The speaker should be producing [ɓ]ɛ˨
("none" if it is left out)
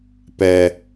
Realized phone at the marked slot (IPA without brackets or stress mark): p